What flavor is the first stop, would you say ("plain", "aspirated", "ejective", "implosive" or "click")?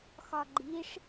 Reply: click